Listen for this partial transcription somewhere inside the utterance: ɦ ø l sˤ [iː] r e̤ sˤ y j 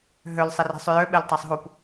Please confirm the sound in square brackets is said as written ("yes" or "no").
no